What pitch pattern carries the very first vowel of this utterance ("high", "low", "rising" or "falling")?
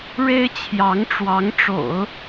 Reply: high